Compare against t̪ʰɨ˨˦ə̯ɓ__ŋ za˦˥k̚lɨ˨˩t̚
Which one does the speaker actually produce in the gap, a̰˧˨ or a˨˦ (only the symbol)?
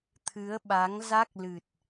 a˨˦